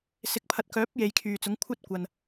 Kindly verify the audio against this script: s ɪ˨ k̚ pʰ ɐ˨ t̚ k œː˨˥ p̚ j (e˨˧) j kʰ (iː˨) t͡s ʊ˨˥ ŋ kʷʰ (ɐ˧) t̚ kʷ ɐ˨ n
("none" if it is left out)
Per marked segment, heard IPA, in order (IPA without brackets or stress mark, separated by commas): e˨˧, yː˨, ɐ˥